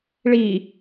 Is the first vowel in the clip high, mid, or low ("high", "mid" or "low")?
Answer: high